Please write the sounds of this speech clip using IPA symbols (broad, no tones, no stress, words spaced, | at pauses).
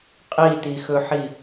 qʼitixɵħi